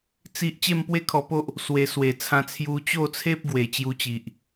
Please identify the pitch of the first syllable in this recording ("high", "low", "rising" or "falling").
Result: high